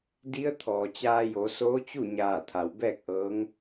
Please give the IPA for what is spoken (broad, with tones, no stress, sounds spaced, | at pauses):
d i˧˥ ə̯ t̪ʰ ɔː˩ t͡ɕ aː˧ j o˩˧ s oː˧˥ t͡ɕ u˥˨ ɲ aː˧˩ t̪ʰ a˩ w b ɛː˥˨ k̚ ʔ ɤː˧˥ ŋ